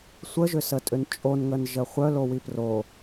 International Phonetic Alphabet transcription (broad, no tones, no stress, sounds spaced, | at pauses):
sʷ ə ʒ ʏ s ə tʼ ʏ n t͡ʃʼ o n ŋ ə n ʒ ə χʷ œ l o w i p r o